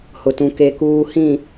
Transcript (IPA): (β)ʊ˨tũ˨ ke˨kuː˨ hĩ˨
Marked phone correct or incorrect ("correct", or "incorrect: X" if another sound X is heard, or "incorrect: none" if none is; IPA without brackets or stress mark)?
incorrect: h